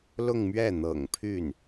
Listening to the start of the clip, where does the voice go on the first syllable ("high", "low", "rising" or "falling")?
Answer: falling